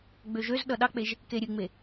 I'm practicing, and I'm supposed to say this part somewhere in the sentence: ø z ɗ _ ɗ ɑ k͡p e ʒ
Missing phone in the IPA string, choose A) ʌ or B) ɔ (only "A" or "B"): A